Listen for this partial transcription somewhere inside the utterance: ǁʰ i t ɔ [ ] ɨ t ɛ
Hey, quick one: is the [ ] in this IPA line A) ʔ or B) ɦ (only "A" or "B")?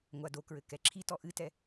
A